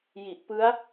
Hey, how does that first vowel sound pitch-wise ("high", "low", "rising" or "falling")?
low